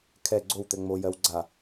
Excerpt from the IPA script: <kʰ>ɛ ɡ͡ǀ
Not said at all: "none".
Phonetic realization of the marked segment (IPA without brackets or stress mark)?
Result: kʰ